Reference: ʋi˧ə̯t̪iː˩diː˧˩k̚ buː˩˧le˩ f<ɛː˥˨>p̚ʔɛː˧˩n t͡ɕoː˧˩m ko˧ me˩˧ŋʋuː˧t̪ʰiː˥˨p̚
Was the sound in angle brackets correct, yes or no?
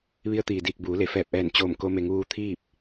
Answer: no